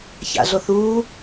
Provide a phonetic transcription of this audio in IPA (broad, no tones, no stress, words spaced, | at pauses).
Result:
ça̰ɮoθuː